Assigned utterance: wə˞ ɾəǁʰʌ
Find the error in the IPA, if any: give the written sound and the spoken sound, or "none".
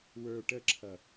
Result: ɾ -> ʈ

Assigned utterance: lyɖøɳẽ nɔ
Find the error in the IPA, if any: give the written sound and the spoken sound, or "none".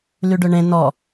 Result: none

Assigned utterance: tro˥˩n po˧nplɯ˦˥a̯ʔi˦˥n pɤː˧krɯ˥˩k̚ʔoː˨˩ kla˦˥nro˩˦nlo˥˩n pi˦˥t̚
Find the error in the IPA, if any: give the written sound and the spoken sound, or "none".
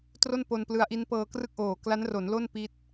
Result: none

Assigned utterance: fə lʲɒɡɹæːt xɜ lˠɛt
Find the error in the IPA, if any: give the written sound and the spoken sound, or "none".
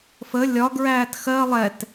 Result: none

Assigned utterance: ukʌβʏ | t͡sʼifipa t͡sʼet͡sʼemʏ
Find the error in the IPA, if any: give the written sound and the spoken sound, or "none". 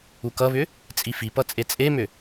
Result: a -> ʌ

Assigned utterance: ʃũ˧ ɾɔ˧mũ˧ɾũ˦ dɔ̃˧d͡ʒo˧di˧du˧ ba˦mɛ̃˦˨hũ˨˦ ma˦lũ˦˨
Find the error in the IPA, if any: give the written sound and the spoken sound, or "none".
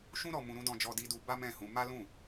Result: o˧ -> ɔ˧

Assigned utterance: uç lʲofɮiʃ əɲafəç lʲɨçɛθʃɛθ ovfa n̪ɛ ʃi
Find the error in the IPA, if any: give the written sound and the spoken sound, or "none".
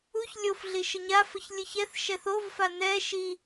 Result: none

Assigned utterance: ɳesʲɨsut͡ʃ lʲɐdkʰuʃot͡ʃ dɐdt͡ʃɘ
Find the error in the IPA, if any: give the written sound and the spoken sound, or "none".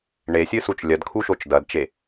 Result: ɘ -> e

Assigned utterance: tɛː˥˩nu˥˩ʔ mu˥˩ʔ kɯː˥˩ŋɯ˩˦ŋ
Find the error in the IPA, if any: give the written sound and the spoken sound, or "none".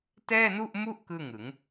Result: none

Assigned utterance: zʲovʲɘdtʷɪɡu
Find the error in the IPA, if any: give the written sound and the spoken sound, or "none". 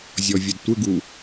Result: o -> ɔ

